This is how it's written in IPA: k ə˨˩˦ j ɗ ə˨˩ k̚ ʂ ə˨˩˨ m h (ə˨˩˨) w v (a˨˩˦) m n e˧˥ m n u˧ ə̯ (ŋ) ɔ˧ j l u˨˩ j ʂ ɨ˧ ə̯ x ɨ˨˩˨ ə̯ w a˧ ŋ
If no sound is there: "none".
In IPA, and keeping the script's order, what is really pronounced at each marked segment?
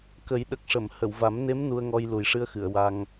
ə˨˩˨, a˨˩˦, ŋ

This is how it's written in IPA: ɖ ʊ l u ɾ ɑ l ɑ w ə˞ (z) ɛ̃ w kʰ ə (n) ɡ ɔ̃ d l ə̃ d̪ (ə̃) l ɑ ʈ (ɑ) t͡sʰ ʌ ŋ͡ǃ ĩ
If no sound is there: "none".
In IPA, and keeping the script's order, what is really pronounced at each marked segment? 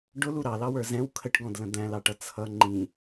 z, ʈ, æ̃, ʌ

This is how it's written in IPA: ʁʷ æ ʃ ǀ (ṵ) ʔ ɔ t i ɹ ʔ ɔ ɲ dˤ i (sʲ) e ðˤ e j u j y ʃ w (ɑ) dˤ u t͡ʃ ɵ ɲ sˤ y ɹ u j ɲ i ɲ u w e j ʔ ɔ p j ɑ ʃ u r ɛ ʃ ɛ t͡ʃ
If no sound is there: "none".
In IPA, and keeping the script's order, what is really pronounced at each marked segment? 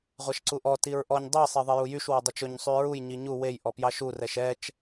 u, sˤ, ɔ

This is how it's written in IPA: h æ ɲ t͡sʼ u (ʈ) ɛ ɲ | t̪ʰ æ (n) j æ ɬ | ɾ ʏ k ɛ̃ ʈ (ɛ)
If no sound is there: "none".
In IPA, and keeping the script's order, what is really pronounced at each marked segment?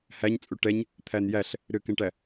ʈ, n, æ

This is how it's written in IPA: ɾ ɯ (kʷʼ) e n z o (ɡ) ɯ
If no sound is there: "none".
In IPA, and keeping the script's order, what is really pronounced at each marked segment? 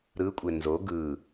kʷʼ, ɡ

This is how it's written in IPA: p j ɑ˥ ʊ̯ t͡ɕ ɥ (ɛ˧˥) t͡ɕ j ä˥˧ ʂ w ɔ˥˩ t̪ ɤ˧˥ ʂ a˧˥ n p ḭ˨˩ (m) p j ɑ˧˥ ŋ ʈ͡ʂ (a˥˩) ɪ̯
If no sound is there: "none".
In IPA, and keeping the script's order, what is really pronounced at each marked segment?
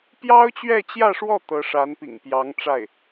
ɛ˥˧, ŋ, a˥˩

